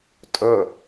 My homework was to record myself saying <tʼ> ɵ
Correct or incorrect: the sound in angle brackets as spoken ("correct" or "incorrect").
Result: correct